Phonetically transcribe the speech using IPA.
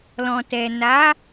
l ɔ̃˨ t ɛ˨ n a˨˦

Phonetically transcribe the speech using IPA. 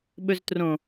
ɓ ɵ z t r õ

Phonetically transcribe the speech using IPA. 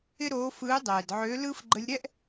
ɪ˥ ɾ oː˧˥ f ɯː˧˥ dˤ ɛː˩ d ʕ ø˧˥ l ɯ˧ f ɡ͡ǃ ə˧ lʲ ɾ ɛ˥ ʔ

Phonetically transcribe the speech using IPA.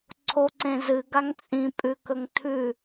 ǀʰ o ǀ ẽ z ɨ ɡ a ŋ t͡sʼ ĩ pʼ ʉ k ɵ ŋ tʰ ʉ

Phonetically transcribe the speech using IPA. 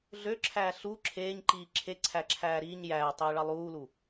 ɮ ø ǁʰ æː ɬ u ǁʰ eː ɲ ǃ iː ǁʰ e ǀʰ æ ǁʰ æː ɾ i ɲ j æː tˤ eː ɭ ɑ lˠ uː l u

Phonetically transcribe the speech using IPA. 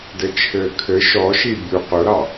d ɘ t͡ʃʰ ɘː kʰ ɘ ʃ ɔ ʃ i bʲ u q ʊ ɾ ɑ

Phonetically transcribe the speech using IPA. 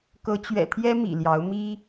k ɤ˨˦ t͡ɕ ɥ ɛ̰˨˩ t̪ʰ j ɛ˦ m ḭ˨˩ l j ɑ˨˦ ʊ̯ m i˦

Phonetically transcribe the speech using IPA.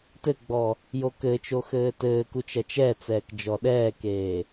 t ɘ ɡ͡b ɔ | j o k ɘ t͡ʃ o x ɘː t ɘː k u t͡ʃ ɐ t͡ʃ ɛ t͡s ɛː k d͡ʒ ɔ ɗ ɛː k eː

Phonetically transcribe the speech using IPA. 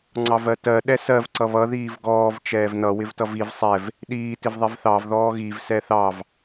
ŋ͡ǀ ɑ v ɜ t ɜ ɗ ɛ s ɜ v ǀ ʌ β ʌ ð iː v ɡ ɔː v t͡ʃ ɛː v n ʌ w ɪ v t ʌ v i v sˤ ɛ v | ɗ iː t ɪ v ðˤ i v θ ɑ v ð ɔː ɣ i v s ɛ θ ɑ v

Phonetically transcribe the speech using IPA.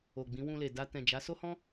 o˨ ɡ͡b ĩ˨˦ w ũ˧ l e˨ d a˧ t ɛ̃˨ d͡ʒ a˨˦ s o˦ h ɔ̃˦

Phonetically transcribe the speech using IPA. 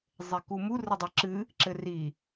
zˤ e k u m u r ɘ dˤ ɘ ǁ ɨ | ǁ ɘ r i

